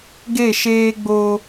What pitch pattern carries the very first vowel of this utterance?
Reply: falling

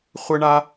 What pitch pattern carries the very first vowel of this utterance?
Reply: high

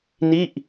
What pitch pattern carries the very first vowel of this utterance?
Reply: falling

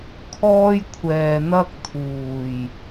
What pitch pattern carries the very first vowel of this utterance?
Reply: high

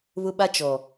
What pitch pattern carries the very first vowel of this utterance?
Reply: high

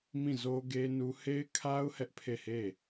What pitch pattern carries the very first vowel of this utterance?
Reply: falling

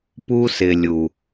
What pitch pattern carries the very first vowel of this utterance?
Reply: high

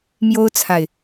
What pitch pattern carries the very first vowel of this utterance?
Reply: high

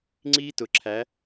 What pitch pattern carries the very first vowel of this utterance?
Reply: high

